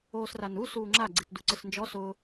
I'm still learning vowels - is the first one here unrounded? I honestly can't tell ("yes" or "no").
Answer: no